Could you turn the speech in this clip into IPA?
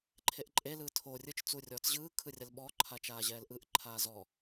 ǃʰeʔǃʼe lɯːtʰo rʲɯt͡ʃ t͡surʲɔːt͡sʑɯː kʰɯrʲalɓɔ ǃʰat͡ʃaːʑɛːlʔɯʔ ǃʰaːzɔ

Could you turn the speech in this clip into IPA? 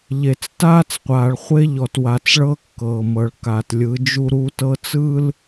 ʎe˨t͡staː˦t͡sqʷaː˨ɭχʷe˦ ʎɔ˨t wa˨t͡sɭɤ˦ kːɤː˨mɤ˨ɭ ka˨tlʲɯ˨˦ d͡ʒu˦ɾuː˦tɤ˦t͡sɯ˦l

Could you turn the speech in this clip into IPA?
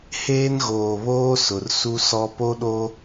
heː˦nɣoː˨βoː˦ sʊ˨rsu˦sɔ˦ po˦ɗo˦

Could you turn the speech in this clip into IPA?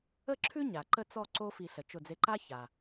ə˥˧ǁʰʉ˥ ɲa˩ǃə˥˧t͡sɔ˥˧ ǀo˥fi˧˩ ɬə˩t͡ʃʊ˧˩d͡ze˧ǃa˥ ça˩

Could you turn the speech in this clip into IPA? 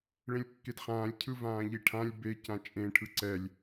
ɭẽlʲkːedχãːlʲ cʰɯvãːʎiʈʰãlʲ be cãt͡ʃʼẽ ʈʰɯǀɛlʲ

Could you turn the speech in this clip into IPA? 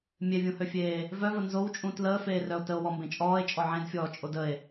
mʲevʲũhøfʲeː | vœvə nzowt͡ʃʼũ tləːfeːrœo̯ təo̯wɔmbẽ t͡ʃʼɔːe̯t͡ʃʼɔ ʕẽdfʲɔːt͡ʃʼod əe̯

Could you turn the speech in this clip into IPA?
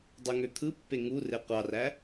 dˤuŋøt̪ʰɯpːe ŋure qʷɑræ

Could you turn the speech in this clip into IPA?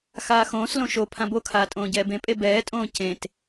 xaːxõːslõ ʃo pʰãbokʰaː tʼõːɟɛːbẽpʼe bɛːtʼõː cẽt

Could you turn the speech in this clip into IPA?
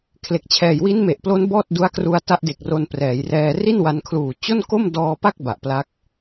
kʰle˨˩k̚t͡ɕʰɛː˨˩j wi˦˥nme˨˩ʔplo˦˥n bɔː˥˩t̚du˦˥a̯kru˧a̯ ta˦˥ʔde˨˩k̚ ro˧nprɛː˩˦jrɛː˧ ri˥˩nwa˧nkʰluː˨˩ t͡ɕo˥˩nko˥˩m dɔː˧pa˥˩k̚ ba˨˩ʔpla˦˥k̚

